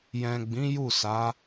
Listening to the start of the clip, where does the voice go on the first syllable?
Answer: low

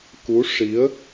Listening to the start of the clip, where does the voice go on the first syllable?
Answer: rising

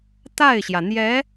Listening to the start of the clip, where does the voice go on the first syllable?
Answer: falling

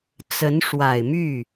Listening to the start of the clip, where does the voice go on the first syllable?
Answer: rising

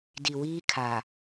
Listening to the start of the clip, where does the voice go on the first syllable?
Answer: low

